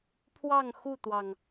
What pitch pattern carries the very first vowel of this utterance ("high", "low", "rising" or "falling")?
falling